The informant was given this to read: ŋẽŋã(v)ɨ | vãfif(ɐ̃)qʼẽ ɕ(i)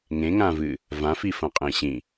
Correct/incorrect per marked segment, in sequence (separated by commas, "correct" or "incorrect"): correct, correct, incorrect